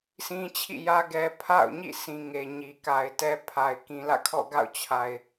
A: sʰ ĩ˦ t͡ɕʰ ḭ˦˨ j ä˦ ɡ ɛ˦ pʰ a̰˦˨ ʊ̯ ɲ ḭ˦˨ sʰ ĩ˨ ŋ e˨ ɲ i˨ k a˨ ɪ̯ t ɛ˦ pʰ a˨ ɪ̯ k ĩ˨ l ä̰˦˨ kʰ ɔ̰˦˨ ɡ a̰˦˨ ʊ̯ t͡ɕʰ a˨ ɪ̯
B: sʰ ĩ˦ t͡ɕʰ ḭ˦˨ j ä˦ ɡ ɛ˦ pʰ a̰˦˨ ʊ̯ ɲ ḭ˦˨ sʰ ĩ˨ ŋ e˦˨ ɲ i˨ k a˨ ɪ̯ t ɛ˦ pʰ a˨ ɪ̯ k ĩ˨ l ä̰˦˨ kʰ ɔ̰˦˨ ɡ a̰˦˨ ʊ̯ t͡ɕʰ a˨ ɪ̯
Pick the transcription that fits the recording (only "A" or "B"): A